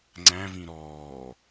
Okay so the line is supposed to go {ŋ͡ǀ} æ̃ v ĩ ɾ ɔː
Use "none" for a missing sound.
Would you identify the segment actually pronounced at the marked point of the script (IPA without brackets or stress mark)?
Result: ŋ͡ǀ